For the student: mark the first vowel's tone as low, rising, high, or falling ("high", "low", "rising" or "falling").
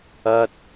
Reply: high